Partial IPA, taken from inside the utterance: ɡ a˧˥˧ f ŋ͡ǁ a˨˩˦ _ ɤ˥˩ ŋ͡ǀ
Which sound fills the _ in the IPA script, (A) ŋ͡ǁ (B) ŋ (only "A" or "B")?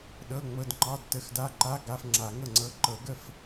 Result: B